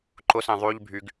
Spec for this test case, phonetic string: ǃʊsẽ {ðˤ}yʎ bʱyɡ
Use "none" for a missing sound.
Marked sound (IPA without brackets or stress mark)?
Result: ðˤ